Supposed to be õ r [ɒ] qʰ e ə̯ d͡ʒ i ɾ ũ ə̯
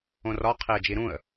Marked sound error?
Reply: no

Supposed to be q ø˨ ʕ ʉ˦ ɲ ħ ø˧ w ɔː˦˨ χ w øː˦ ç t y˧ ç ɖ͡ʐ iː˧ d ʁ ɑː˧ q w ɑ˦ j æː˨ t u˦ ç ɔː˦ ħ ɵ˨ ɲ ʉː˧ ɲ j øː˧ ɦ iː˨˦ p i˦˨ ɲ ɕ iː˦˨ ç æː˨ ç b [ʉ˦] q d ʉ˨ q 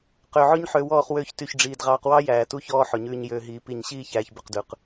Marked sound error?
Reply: yes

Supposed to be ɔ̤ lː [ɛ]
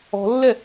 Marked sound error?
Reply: no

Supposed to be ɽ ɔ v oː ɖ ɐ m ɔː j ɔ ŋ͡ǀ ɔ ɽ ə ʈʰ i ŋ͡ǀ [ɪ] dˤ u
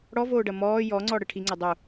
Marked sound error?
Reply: no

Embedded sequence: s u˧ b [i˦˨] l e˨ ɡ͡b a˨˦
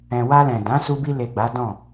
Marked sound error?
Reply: yes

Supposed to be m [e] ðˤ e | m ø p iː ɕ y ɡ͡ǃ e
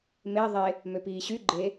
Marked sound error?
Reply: no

